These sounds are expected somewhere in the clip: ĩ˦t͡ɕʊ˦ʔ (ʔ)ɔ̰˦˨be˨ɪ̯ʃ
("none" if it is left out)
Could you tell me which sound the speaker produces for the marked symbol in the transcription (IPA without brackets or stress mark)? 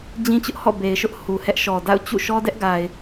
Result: h